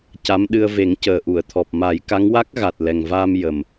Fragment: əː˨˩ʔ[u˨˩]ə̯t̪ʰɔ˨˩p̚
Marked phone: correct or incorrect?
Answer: incorrect: u˨˩˨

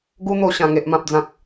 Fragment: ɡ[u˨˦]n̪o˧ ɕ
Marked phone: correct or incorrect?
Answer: incorrect: u˦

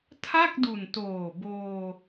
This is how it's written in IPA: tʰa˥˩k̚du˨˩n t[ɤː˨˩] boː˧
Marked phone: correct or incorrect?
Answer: incorrect: oː˨˩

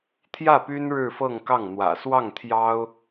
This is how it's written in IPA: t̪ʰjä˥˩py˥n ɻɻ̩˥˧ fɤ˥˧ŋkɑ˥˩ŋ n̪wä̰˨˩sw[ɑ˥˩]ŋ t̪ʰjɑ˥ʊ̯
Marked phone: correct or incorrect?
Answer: correct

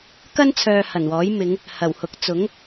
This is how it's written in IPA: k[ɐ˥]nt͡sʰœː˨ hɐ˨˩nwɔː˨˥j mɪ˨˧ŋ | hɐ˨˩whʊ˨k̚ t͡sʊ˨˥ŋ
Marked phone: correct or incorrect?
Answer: correct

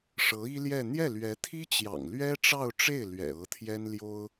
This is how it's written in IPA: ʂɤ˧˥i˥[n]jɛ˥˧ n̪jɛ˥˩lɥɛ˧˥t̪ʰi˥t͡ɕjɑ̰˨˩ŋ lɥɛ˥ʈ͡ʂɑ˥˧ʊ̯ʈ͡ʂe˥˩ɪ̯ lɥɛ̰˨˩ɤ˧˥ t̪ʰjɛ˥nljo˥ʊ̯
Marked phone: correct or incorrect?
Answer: incorrect: l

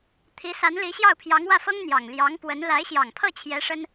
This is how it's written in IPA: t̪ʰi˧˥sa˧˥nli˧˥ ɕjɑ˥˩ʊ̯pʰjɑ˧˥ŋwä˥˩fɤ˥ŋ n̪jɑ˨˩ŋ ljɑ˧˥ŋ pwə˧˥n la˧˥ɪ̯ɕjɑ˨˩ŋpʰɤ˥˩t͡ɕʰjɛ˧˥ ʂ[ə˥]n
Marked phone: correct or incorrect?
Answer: correct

